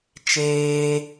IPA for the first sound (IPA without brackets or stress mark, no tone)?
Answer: t͡ʃ